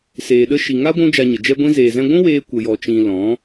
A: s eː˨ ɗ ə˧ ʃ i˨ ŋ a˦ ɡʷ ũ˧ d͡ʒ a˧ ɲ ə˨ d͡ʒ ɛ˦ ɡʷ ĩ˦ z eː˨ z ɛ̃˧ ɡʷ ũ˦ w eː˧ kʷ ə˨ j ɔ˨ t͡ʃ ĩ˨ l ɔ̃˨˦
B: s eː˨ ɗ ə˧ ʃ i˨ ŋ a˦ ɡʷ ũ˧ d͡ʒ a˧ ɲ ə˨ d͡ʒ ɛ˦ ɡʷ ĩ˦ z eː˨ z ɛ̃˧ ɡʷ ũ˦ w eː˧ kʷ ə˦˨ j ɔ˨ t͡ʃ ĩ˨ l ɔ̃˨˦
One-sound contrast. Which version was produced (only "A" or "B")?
A